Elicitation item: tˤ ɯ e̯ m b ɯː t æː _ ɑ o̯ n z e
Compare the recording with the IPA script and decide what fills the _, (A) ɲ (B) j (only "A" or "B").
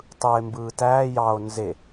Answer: B